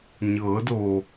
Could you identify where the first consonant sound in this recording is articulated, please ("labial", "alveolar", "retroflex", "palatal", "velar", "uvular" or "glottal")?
palatal